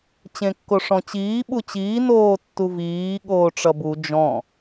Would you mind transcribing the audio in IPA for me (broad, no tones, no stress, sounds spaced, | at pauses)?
t͡ɕ ẽ kː o ʂ ɔ̃ t͡ɕ iː ɓ u t͡ɕ iː n oː tː u v iː ɠ oː ʈ͡ʂ ʌ b u d͡ʒ ɔ̃